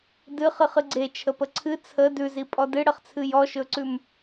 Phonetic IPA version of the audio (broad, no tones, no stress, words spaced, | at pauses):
dɨχɨχ ɨɡ͡ǀe t͡ʃʰəpəǀʰɨ t͡sʰə dʉzi pʼɔdɨɽəχt͡sʰɨ jɔʃɵǀʉm